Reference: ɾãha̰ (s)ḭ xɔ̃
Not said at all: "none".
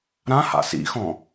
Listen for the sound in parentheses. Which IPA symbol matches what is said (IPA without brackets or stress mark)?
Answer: s